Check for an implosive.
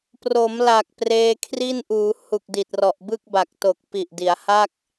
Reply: absent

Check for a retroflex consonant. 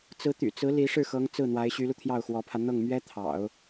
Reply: present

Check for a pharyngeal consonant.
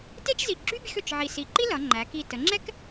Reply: present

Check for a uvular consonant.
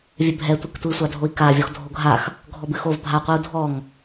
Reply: present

